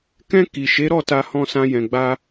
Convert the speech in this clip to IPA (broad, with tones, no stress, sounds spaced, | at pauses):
k ɛ̃˧ k i˨ ʃ e˨˦ ɾ ɔ˦˨ t a˧ h ɔ̃˧ s ã˧ j ɛ̃˨ ɡ͡b a˧